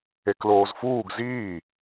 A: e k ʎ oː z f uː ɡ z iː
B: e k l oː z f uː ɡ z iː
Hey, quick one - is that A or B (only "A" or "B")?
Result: B